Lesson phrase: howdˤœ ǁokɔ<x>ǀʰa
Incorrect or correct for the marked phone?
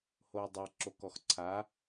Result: correct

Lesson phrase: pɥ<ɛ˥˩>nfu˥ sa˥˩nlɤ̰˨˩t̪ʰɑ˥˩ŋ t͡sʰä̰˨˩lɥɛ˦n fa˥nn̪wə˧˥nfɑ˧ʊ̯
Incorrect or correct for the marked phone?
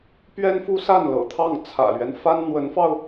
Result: incorrect: ɛ˥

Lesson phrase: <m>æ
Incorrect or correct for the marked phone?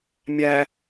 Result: incorrect: mʲ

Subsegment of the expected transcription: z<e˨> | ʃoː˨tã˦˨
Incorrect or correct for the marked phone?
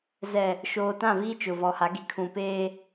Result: incorrect: ɛ˨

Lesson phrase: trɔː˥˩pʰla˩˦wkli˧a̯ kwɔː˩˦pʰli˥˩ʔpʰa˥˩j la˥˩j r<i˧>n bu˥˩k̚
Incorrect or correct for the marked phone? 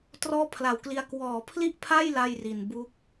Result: incorrect: i˨˩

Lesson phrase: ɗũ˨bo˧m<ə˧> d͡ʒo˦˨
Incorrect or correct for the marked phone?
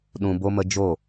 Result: correct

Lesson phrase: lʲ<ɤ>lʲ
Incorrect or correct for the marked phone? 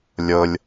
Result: correct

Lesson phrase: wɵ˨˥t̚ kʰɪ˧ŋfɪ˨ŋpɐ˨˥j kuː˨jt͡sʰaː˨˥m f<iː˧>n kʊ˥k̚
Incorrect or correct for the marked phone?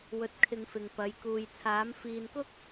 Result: incorrect: iː˨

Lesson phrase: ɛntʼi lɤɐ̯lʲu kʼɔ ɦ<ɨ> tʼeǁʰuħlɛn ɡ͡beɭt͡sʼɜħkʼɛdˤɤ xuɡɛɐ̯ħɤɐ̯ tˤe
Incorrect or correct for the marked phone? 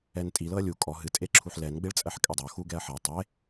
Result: correct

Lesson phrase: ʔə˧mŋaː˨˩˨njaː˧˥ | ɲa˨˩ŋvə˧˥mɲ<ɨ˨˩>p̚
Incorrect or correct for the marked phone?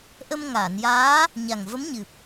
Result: correct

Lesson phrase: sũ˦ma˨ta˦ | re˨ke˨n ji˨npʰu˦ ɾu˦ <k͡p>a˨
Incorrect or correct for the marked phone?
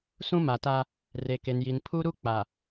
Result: correct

